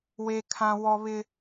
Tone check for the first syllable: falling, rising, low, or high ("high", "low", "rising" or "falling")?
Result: high